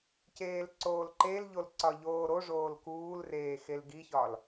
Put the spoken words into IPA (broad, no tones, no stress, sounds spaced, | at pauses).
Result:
c eː l ǀ oː l ǃ e l ʎ o l ǀ ɒ ʎ oː ɾ o ʐ oː l k uː l r eː x e l ɡ i ç ɒ l